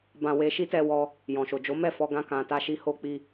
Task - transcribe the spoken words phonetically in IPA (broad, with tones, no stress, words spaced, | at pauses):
bã˧ we˧ʃi˦tɛ˧ wɔ˧ | jɔ̃˨ʃo˨d͡ʒo˨˦ mɛ˦˨fɔ˧ɡã˧ kã˨ ta˧ʃi˧ ho˧k͡pi˧